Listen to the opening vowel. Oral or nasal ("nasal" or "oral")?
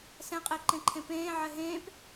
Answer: nasal